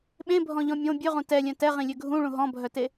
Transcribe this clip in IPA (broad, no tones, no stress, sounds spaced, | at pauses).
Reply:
ɓ ẽ bʱ ɔ̃ ʎ ɔ̃ mʲ õ bʲ ø ʁ ũ t ɛ lʲ œ̃ t ɛ ʁ ĩ lʲ ø ɡʱ ũ ɭ ũ ɦ ɔ̃ bʱ œ t e